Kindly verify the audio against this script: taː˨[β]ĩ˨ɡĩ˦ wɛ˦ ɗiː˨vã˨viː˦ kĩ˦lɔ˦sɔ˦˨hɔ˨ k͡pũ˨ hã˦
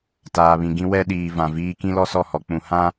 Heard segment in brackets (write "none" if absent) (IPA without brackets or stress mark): β